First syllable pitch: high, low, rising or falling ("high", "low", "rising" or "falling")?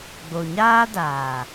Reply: low